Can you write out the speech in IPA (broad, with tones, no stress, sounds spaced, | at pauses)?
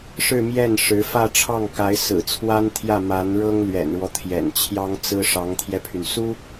ʂ ɻ̩˥˧ m j ɛ˥˩ n ʂ ɻ̩˧˥ f ä˥˧ ʈ͡ʂʰ ɑ˥˩ ŋ k a˧˥ ɪ̯ s ɹ̩˨˩ t͡sʰ w a˥ n t̪ʰ j ä˥˩ m a˧˥ n ɻ ɤ˥ ŋ l ɥ ɛ̰˨˩ n ɻ w ɔ˦ t̪ʰ j ɛ̰˨˩ n t͡ɕʰ j ɑ˥ ŋ t͡s ɹ̩˥ ʂ ɑ˧˥ ŋ t̪ʰ j ɛ˧ pʰ y˩ n s u˥